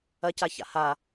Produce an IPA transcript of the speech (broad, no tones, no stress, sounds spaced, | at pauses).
ɐ c a ç a̰ h a